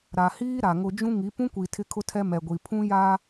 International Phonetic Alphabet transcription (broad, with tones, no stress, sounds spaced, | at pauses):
ɾ a˨ h iː˦ ɾ a˨ ŋ ʊ˦ d͡ʒ ũ˦ ŋ i˨˦ p ũ˦ kʷ i˨ tʰ ɪ˦ kʰ ʊ˦ tʰ ɛ˦ m ɛ˨ ɡʷ i˨ pʰ ũ˦ j a˦